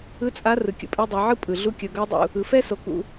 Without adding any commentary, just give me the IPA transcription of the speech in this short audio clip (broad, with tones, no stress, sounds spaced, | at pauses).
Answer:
ɯ˧˥ t͡sʼ a˧˥ r ɯ˩ kʲ ṵ˩ pʼ ɛ˧ dˤ ɤ˩˧ ʕ ɯ˥ pʼ ɯ˩ ɮ u˧˥ kʲ ɤ˩˧ ɡ ɤ˧˥ dˤ ṵ˩ | ɯ˩˧ f ɛ˥ s o˩˧ k ṵ˩